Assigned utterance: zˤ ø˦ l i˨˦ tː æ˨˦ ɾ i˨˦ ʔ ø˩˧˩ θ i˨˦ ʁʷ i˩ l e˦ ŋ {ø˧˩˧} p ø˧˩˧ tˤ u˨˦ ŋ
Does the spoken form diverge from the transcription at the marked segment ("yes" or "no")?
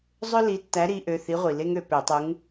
yes